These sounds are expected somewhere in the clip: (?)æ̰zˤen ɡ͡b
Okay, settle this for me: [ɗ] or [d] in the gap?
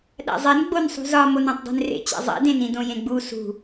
ɗ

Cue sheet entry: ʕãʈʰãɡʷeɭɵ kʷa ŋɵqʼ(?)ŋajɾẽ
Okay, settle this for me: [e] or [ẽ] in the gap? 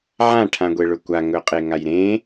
e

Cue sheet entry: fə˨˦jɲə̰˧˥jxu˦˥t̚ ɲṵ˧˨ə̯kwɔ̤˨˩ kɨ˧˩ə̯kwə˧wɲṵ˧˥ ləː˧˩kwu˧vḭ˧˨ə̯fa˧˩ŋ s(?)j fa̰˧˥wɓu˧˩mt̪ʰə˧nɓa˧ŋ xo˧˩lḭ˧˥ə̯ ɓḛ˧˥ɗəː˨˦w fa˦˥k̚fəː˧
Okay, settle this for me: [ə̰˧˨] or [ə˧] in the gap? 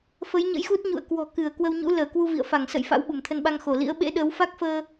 ə̰˧˨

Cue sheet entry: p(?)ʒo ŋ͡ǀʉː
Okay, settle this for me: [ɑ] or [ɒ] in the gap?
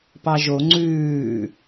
ɑ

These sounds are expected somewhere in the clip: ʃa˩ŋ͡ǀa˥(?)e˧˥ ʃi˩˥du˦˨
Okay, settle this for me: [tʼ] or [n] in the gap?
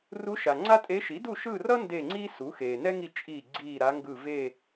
tʼ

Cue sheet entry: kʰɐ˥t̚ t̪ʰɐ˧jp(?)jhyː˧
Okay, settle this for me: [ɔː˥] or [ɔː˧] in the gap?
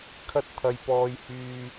ɔː˧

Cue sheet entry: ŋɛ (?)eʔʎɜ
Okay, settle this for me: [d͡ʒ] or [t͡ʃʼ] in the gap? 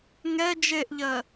d͡ʒ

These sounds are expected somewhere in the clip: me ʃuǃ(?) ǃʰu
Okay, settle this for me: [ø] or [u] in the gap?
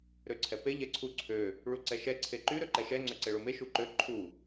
ø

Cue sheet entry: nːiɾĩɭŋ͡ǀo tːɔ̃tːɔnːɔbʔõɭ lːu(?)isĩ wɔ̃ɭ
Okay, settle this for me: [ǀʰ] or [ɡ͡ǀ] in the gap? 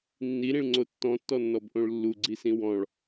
ɡ͡ǀ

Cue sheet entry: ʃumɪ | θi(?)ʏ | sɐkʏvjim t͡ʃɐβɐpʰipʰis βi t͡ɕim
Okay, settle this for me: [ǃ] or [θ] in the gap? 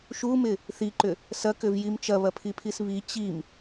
ǃ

